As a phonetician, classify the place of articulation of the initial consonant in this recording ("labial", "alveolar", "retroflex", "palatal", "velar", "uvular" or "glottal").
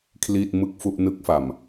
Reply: velar